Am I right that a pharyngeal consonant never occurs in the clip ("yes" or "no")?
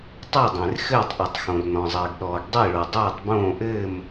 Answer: yes